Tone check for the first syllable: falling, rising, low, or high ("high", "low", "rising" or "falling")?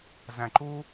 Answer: high